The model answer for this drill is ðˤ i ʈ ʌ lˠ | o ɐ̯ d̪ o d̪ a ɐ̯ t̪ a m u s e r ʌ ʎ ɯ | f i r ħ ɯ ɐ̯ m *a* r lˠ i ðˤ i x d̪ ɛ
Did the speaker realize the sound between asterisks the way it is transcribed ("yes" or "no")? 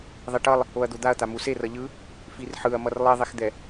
no